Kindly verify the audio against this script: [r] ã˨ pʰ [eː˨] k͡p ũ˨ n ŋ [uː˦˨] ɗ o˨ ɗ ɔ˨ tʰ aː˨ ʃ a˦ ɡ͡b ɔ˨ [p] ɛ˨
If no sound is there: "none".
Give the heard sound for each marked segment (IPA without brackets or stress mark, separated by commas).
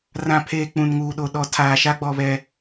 r, eː˨, uː˨, β